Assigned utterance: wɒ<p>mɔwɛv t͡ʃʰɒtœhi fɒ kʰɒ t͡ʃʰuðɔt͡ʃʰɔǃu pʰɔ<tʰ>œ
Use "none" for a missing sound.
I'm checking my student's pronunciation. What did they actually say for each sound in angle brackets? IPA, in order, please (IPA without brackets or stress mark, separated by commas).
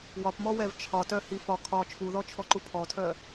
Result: p, tʰ